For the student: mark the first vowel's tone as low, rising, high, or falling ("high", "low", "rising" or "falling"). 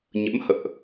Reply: rising